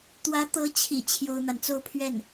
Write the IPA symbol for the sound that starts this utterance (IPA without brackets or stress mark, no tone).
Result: t̪